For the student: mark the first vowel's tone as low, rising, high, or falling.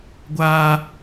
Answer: high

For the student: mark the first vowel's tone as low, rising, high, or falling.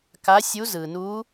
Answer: rising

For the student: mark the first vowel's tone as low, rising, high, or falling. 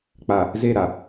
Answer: low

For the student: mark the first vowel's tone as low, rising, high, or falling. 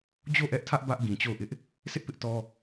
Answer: falling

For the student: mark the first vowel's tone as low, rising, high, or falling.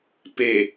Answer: low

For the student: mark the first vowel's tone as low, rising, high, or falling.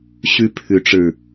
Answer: high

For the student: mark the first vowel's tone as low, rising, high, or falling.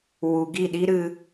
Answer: low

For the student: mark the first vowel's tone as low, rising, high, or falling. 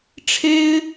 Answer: high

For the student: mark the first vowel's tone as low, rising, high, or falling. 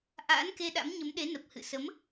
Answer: rising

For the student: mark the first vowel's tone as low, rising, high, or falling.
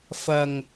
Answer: low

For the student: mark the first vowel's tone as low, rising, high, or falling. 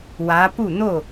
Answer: rising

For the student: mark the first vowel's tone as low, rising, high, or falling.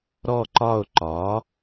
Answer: falling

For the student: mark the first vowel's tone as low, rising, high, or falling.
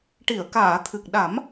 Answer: low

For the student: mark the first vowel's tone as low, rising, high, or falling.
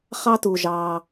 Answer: high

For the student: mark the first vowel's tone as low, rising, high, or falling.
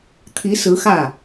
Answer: rising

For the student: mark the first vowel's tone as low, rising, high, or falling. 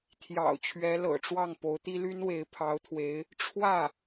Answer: low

